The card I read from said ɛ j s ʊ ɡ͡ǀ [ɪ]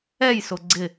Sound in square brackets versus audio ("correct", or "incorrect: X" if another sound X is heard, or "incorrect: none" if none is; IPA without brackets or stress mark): correct